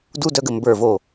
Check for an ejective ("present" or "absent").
absent